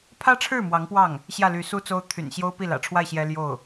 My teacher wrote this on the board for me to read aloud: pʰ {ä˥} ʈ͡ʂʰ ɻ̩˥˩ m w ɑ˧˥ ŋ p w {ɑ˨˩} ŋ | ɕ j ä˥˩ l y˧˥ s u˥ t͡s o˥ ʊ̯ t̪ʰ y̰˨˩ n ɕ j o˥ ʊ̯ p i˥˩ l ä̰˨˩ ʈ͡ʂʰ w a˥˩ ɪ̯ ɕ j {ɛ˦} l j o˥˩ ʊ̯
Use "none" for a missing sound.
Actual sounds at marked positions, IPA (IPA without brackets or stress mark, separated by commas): ä˥, ɑ˥˩, ɛ˥